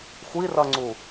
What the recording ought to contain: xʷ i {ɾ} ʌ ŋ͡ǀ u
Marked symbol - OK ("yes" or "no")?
no